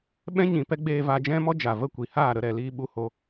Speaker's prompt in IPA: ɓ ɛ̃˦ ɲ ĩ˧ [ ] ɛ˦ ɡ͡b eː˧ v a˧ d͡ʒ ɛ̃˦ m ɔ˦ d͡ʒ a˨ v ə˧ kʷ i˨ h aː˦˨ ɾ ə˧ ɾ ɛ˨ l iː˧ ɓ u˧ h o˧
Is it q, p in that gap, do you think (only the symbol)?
p